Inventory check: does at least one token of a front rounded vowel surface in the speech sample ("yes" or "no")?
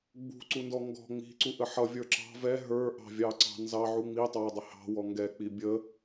no